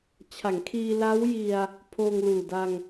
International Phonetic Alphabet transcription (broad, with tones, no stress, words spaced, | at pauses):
t͡ɕʰa˩˦ŋkʰiː˧la˦˥w ji˧a̯ | pʰoː˧ŋluː˨˩da˧ŋ